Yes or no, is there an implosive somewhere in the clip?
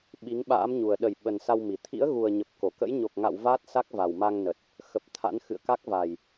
yes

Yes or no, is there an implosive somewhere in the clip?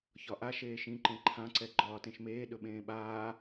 yes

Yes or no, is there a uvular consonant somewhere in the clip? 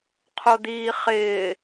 yes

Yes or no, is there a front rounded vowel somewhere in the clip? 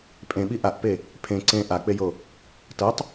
no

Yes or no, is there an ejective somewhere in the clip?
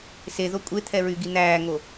yes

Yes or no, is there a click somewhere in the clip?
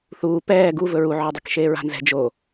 no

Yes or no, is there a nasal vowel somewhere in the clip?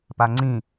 yes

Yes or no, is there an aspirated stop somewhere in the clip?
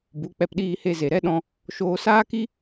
no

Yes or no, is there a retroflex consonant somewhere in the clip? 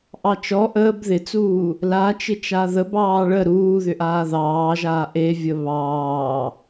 yes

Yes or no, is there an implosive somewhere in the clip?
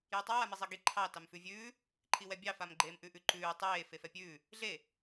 no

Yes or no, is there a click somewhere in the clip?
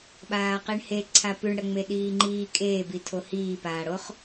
yes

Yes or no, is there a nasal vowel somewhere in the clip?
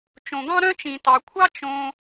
yes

